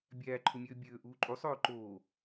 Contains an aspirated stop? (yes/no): yes